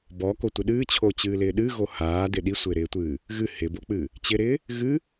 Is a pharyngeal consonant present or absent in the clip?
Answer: absent